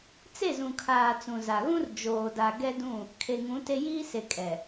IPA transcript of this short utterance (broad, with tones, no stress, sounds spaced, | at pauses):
t͡s e˦˨ z ũ˨ kʰ aː˨ t͡s ũ˨ z a˨ ɣ ũ˦ r d͡ʒ oː˨ d a˨ ɡ ɛ˦ d ũ˦˨ | kʰ e˨ ŋ ũ˨˦ t e˦ j iː˦ s e˨ kʼ ɛ˨